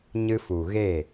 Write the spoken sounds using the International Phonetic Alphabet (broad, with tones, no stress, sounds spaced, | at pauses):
ɲ ɨ˧ f u˨ ɣ e˦˨